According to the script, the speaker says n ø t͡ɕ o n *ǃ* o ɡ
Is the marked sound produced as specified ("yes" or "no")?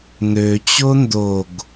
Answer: no